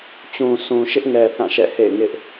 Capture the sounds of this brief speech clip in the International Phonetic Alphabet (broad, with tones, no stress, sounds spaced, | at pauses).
t͡ɕ ũ˨ s ũ˨ ʃ ɪ˦ ʔ ŋ ɛ˨ θ ã˦˨ ʃ ɛ̰˦˨ h ḛ˦˨ ɪ̯ ŋ ɪ˦ ʔ